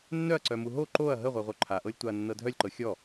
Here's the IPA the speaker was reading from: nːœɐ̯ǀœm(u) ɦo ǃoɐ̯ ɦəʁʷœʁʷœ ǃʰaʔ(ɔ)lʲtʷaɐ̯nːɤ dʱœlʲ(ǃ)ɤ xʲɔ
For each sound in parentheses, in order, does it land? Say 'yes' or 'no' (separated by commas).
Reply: yes, no, yes